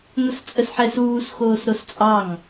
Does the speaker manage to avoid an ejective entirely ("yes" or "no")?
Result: no